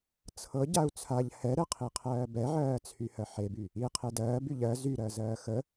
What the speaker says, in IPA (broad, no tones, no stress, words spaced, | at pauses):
t͡sʰɤ ɟau̯t͡sʰaʎ hɛɾɛqʰiqʰɜː bɛʕɜːt͡sʰy hɜħeby | i qʰedɜːbyʎ ɜ zyɾɜ zɜːxə